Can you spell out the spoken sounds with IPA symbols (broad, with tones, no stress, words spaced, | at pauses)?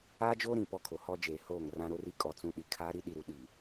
aː˦d͡ʒoː˦ ɾĩ˦˨pɔ˦kʰo˨ hɔ˦d͡ʒeː˨ hoː˦˨ŋrã˦ ɾo˦ri˦ kʼɔ˦t͡sũ˦ ɗi˨ kʰaː˦ ɾi˦ɗi˨ ɾu˨˦ɗiː˨